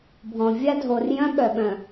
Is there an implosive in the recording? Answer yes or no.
yes